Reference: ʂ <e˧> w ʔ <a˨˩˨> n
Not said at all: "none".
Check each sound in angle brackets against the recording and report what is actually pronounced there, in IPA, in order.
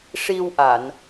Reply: i˧, a˨˩˨

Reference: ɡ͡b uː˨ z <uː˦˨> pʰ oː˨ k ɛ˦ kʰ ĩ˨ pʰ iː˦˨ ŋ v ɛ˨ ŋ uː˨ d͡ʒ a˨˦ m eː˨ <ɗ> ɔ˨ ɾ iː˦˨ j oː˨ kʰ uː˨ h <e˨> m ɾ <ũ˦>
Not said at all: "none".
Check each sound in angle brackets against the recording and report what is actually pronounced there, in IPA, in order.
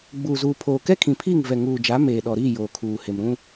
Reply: uː˨, ɗ, e˨, ũ˦

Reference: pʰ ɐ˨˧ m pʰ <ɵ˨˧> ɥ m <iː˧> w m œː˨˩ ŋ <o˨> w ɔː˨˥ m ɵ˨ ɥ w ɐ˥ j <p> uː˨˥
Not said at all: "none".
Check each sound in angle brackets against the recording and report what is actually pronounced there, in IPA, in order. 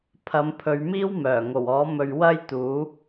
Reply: ɵ˨˧, iː˥, o˨˩, t̪

